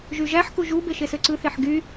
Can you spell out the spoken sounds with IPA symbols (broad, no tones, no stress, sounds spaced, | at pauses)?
ʒ y ʒ æ ħ k u ʒ u b e ʃ e s ø ǀ ɯ θ e ħ ɡ y